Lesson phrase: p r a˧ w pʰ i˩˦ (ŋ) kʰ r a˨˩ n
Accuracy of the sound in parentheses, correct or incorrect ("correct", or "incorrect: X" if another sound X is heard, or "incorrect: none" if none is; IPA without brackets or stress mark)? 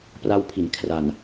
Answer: incorrect: n